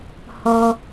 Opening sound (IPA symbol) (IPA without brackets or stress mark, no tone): h